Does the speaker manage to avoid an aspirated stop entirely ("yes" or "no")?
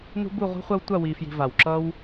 yes